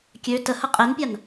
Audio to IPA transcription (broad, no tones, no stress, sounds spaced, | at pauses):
kʲ ø t ə h ə qʼ e n pʲ a n